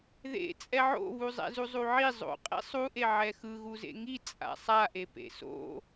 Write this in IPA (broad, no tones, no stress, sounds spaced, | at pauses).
ð ḛ t͡sʼ ɛ ʕ o̰ β u zˤ ɛ̰ z u zˤ u ʕ i zˤ o̰ qʼ ḭ sˤ u ʔ e ʕ ɛ x ɯ ɣ u z ḛ ŋ i t͡sʼ a̰ sˤ a ʔ e p ḛ s o̰